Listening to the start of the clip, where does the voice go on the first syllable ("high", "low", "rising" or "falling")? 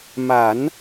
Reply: low